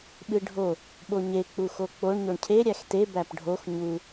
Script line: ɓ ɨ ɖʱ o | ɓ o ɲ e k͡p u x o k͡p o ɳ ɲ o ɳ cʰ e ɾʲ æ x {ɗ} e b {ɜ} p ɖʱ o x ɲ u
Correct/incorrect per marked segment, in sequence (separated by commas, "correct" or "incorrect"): incorrect, incorrect